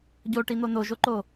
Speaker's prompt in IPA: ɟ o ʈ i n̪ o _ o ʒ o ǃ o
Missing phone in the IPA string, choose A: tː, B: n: B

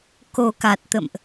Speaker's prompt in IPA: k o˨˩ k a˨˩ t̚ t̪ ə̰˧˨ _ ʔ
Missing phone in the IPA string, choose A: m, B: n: A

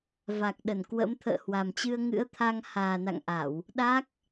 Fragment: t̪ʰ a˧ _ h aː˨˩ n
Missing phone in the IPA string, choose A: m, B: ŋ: B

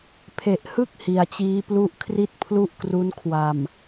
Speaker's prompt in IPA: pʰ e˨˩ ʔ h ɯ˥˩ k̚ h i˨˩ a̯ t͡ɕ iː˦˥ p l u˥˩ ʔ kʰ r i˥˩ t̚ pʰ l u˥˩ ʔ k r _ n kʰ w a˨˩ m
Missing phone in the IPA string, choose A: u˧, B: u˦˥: B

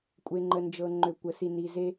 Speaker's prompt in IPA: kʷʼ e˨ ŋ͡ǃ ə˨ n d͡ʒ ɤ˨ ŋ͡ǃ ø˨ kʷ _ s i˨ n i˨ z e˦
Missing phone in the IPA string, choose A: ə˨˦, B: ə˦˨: A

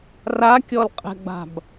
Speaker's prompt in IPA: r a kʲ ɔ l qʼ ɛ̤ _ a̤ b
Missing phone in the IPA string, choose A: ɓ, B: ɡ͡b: B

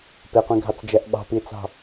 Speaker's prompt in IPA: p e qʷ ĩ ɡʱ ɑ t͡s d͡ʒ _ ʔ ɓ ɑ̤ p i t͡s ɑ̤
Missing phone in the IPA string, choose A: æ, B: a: A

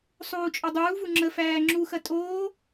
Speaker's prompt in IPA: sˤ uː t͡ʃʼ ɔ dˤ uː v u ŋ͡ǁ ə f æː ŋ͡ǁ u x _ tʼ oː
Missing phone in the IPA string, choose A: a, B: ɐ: B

